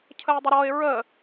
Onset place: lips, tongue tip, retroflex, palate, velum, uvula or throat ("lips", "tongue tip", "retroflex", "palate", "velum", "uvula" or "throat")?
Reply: palate